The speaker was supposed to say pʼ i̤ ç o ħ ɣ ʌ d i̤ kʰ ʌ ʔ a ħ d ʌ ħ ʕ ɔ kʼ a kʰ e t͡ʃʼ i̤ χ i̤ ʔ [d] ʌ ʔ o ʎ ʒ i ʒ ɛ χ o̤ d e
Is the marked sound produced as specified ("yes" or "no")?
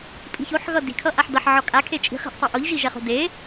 no